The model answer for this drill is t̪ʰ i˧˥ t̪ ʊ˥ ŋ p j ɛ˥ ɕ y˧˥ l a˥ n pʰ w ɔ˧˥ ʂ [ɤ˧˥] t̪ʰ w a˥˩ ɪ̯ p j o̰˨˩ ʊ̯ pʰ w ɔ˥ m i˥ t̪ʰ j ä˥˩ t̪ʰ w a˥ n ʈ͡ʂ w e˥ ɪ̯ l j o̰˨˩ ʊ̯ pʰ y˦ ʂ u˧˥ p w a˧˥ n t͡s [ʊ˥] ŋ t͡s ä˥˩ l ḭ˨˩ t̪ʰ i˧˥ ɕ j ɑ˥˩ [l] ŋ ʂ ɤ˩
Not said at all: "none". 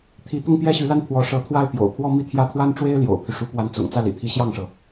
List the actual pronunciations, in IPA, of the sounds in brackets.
ɤ˧˥, ʊ̰˨˩, none

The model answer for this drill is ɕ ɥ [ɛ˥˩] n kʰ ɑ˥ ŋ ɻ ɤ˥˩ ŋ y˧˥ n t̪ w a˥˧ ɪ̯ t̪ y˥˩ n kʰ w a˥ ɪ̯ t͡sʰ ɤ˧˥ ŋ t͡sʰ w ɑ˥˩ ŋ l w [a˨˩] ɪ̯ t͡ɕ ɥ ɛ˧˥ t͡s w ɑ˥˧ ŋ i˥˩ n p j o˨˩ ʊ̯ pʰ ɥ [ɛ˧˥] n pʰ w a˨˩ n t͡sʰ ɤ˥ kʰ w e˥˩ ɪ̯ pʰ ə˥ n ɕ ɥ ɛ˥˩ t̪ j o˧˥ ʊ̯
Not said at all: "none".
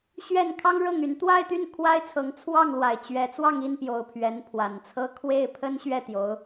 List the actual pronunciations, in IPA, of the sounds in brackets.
ɛ˥˩, a˨˩, ɛ˧˥

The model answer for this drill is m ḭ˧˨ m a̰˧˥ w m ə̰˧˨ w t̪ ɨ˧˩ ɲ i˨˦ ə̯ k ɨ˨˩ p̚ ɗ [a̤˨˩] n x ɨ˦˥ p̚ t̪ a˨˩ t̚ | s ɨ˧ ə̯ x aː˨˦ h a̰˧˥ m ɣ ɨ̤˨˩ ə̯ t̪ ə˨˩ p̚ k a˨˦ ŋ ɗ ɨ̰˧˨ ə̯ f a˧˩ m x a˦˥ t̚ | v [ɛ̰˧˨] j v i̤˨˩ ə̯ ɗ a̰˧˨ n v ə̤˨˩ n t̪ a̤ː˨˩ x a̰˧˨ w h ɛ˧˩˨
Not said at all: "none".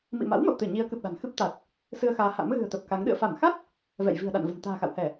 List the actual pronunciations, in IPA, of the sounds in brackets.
a̤˨˩, ɛ̰˧˨

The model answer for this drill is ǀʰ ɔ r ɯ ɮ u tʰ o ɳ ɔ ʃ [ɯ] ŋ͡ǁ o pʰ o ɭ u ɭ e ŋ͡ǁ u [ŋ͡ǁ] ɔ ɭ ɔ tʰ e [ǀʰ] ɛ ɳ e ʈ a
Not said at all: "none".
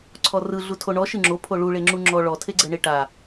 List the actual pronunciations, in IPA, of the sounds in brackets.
ɯ, ŋ͡ǁ, ɡ͡ǀ

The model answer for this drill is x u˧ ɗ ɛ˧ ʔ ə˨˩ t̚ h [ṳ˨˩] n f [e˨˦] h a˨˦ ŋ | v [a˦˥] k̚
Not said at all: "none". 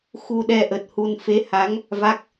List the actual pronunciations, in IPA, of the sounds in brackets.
u˧, e˨˦, a˦˥

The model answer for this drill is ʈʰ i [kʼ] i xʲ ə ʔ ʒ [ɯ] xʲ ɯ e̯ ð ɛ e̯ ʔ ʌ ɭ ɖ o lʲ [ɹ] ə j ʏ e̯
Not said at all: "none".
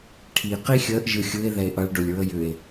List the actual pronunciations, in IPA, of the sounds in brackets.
q, ɯ, ɹ

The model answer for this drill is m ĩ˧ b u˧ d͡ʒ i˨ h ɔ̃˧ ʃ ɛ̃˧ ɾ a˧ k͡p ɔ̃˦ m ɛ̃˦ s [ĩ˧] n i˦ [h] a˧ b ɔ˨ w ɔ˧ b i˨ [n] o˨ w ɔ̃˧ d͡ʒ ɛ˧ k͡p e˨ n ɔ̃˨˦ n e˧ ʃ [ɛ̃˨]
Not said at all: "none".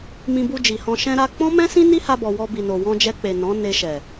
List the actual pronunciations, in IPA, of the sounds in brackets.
ĩ˦, h, n, ɛ˨

